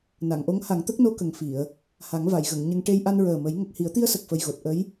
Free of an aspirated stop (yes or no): yes